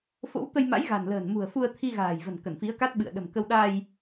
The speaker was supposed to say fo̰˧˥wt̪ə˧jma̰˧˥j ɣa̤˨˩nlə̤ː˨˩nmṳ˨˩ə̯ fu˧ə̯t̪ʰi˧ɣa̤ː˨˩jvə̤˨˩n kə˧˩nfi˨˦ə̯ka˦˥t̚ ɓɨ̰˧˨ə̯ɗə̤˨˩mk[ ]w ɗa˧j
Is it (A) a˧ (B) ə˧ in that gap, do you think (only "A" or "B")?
B